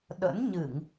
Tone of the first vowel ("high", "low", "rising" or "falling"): rising